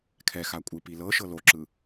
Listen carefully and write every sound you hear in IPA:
kʰɛxa kʷʼɯpilɤʃɤ loǁɯ

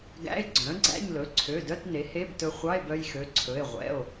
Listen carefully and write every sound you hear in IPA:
ɡæ̰˧˥˧e̯ɡ͡ǀœ̃˩˥ɡ͡ǀæ̰˧˥˧ɲlɵ˩˧˩ ǀʰø˩˧˩dœ˧˥˧t ne˩˥he˧˥˧btɵ˧ χʷɑ˧˥˧e̯bœ˧jxø˩˧˩ǀʰɵ˩˧˩e̯ ʁʷɛ̰˩˧˩o̯

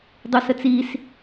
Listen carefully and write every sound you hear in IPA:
dˤusət͡sis

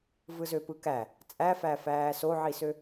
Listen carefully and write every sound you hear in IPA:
vɯzøpɯkæ | t͡sʼæfæ fæːsoʕisø

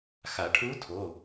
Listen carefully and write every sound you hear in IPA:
xa˨˩˦ʈʰu˧˥tʰo˩˧˩

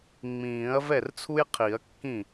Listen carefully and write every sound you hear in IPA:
ŋ͡mĩː˨˩˦ɐ̯ vɛ˥˩rt͡sʰu˥jqʰi˨˩˦ɐ̯kːĩ˥˩

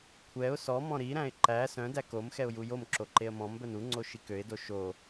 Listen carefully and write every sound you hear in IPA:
kʷʰɛʊ̯ sɔmɔ̃ ɾiɾæ̃ɪ̯ ǃæ sœ̃dæ kom xɛʊ̯jujomǁo ǃeə̯mɔ̃mbœn uŋ͡ǀo ʃikøɪ̯do ʃo

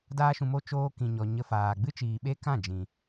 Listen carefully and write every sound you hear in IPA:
daː˧ʃũ˨mo˧ t͡ʃoː˧kĩ˨ɲɔ˨ ɲə˧faː˨ ɡ͡bɨ˦t͡ʃiː˨ ɓe˦kã˦˨ d͡ʒĩ˨

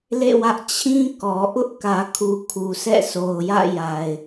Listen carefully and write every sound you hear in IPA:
lḛ˦˨wä˦ʔ t͡ɕʰĩ˦ kɔ˨ʔʊ˦ʔ kä˨ kʰu˨kʰu˨sɛ̰˦˨so˨ʊ̯ jä̰˦˨ja˨ɪ̯

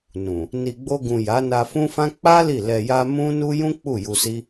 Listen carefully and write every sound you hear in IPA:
nũ˨ | ni˨ɡ͡bo˧ɡũ˨ ja˨˦na˧fũ˦fã˦ k͡pa˦ li˦˨lɛ˧ja˦ mũ˦nu˦ jũ˦ k͡pu˦˨ju˧si˦

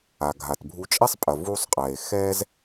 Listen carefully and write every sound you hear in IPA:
a˩ɡʱa˩tbʱu˧ t͡ʃʼɛ˥sˤpʼɐ˩ vu˧sˤqʼɛ˩e̯ xɛ˥z

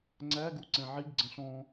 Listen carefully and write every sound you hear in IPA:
ŋ͡ǀæɡu ǀɛ̃ʕiɡ ɡ͡ǀə̃ɬɔ̃

